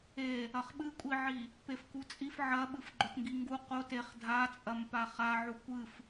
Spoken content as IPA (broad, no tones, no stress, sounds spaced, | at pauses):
e | ɐ χ ɓ ɨ kʷʼ i ʕ i | p e f k u t͡sʼ i f ʕ ɐ ɓ ɨ f ɡ͡ǃ ɵ t ŋ ɡ i ŋ ɡ u q o t e χ dʱ a t͡sʼ ɐ m p a χ a ʕ u kʷ ɨ f